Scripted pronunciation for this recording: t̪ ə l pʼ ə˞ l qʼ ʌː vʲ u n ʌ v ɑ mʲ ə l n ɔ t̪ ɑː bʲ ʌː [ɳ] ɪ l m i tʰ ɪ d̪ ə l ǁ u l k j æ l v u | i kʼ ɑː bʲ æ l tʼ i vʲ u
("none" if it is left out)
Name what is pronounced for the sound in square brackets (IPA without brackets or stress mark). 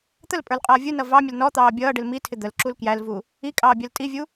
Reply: ɖ